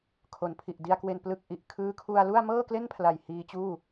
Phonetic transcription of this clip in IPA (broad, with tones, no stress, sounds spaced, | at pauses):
kʰ o˩˦ n pʰ i˨˩ ʔ d i˧ a̯ k w e˧ n p l ɯ˥˩ k̚ ʔ i˨˩ ʔ kʰ ɯː˦˥ kʰ u˧ a̯ l u˥˩ a̯ m ɤː˥˩ k l e˥˩ n pʰ l a˨˩ j h iː˧ t͡ɕ uː˥˩